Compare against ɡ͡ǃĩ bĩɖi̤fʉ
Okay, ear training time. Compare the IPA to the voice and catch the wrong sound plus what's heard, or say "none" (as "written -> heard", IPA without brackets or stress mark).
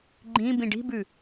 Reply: f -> b